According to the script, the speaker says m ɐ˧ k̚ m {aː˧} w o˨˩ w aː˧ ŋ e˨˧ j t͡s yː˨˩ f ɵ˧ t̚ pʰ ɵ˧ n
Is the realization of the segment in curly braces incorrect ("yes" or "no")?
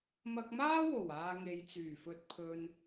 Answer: yes